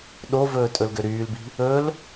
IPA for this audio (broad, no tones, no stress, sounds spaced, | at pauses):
ɗ o v ɵː tʼ ɵ l ɡ ø ɾ yː l b i̤ | ɵ l